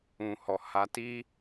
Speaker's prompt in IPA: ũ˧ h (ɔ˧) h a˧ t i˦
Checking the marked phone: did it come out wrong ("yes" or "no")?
no